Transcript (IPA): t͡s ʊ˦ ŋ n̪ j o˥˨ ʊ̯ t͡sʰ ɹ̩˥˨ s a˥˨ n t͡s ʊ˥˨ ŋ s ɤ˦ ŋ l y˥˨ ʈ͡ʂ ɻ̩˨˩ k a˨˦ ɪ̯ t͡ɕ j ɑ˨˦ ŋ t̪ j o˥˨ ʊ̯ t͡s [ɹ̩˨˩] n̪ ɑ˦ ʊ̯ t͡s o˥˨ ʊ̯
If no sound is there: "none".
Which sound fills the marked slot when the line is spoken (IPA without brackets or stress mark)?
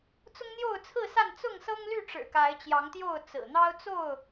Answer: ɹ̩˨˩